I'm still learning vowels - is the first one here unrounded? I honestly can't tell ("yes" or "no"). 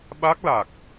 yes